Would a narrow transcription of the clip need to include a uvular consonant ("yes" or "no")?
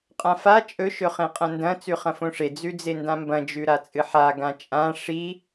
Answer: yes